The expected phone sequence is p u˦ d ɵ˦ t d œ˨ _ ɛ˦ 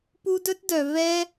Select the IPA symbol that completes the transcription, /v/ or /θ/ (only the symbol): v